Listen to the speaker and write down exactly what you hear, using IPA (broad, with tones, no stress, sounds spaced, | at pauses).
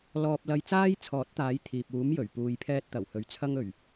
l ɔː˨ p̚ l ɐ˧ j t͡s aː˥ j t͡sʰ ɔː˨˥ t̚ t̪ aː˨˥ j t̪ʰ iː˨ p̚ uː˨˥ m j ɵ˨˩ ɥ p uː˨ j pʰ ɛː˧ t̚ t̪ ɐ˨˩ w h ɵ˨ ɥ t͡sʰ ɐ˧ ŋ ɵ˨˩ ɥ